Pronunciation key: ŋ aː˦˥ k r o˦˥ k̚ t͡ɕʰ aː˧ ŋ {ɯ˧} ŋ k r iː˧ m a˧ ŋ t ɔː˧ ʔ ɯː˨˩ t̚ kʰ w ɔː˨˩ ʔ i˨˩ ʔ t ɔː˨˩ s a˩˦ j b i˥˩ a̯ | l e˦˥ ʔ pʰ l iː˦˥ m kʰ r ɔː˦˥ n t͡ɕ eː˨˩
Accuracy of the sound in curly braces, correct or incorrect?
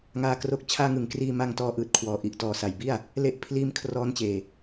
incorrect